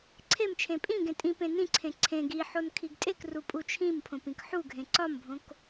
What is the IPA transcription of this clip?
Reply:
ǀʰemt͡ʃʰẽ pʼĩ ɡẽtʼĩpẽ nĩǀʰẽ ǀʰẽ ɡiħon kʰiɡtʼekru pʼut͡ʃʰĩmpʰõp ĩkħuɡʱẽ ǀɒmbʱõk

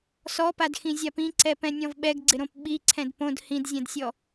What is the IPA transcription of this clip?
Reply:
sɔpadxĩzʲap ĩǀɛpɛ̃nʲɔ̃v ɓɛɡɡ͡ǀɪɾõp ɓiǀʰɛ̃d põd hĩdzʲɛ̃dsʲɔ

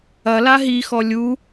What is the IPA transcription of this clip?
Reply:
ɐla ɦixɔ lʲu

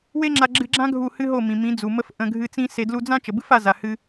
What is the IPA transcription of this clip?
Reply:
we˦ŋ͡ǁa˧ɡ͡ǁɨ˧ɡ͡ǁã˦ ɡʱu˦˨hɨ˦ɦo˦˨mĩ˨ mĩ˨˦d͡zu˨mə˧f ʔə̃˧ɡʱɨ˧ t͡sĩ˦se˧ dlu˧d͡zã˦ t͡ʃə˨bɨ˦fa˧za˨ hɨ˧

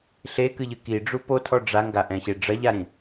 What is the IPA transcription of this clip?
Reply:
ɬekɨʎɨ kiɖ͡ʐu potʰɔ ɖ͡ʐaŋɡaʔɛ̃ɕe ɖ͡ʐɐʎaɾĩ

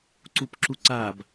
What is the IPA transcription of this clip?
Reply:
ǀupǁuǀab

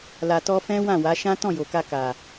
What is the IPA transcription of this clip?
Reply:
la˧tɔ˦ fɛ̃˦wã˦˨wa˨˦ ʃã˦ tɔ̃˦˨jo˨ka˧ ka˨

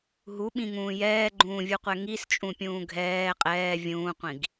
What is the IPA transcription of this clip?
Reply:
ɦuɓĩŋũː jɛːɡ͡ǃũːvʲuqʷɛ ŋist͡ʃʼũpʲũː ɡʱɛː qʼɛː vʲũːqʷĩɡ

